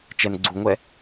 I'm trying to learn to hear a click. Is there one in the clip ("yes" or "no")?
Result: yes